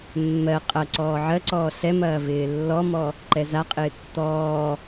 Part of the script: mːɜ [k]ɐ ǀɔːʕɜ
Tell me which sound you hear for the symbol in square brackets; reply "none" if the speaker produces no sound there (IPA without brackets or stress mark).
qʼ